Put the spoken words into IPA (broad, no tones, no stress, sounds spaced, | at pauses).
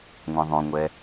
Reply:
ŋʷ ɛ̃ ðˤ õ ŋʷ ɛ